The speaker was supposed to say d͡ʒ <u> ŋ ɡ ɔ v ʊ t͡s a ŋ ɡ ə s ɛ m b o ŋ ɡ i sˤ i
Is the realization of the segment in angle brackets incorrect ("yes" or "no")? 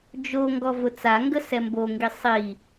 yes